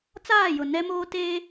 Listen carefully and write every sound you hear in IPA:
t͡s aː˦˨ j ʊ˨ n ɛ˦ m oː˦ t eː˦

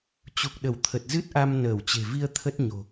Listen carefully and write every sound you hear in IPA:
t͡ɕ u˨˩ k̚ ɗ ə˧˩ w t̪ʰ ə˨˩ t̚ z ɨ˦˥ t̚ ʔ a˧ m n əː˧˩ w t͡ɕ e̤˨˩ v i˧ ə̯ t̪ʰ ə˦˥ t̚ ɲ o̤˨˩

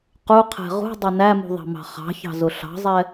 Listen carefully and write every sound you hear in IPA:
q u qʰ ɛ̤ ʁ ṳ dˤ ʊ n æ m ṳ ðˤ ɑ̤ m ɑ̤ χ ɑ̤ ç ɑ̤ z ʊ ɬ ɑ̤ zˤ ɛ

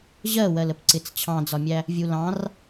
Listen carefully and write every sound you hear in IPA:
ʑ ɜ w ɜ l ə p ǀ ɪ t͡s t͡ɕʰ ɑ̃ d͡z ɒ mʲ æ | vʲ u l ɑ̃ r

